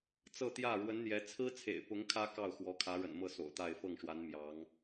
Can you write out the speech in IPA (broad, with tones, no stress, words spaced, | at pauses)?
t͡sɤ˥˧t̪jä˥˩ ɻwə˧˥nn̪jɛ˧˥ t͡sʰɹ̩˥t͡sʰḛ˨˩ɪ̯pʊ˧˥ŋ kʰä˥kɑ˥˩ʊ̯ xwɔ˧˥kʰä˧˥ɻə̰˨˩nmɤ˥˩ so̰˨˩ʊ̯t̪a˥˧ɪ̯ fɤ˥˩ŋʂwa˧˥n mjɑ˧˥ŋ